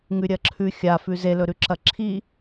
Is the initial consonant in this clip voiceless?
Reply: no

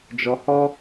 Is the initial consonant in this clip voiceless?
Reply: no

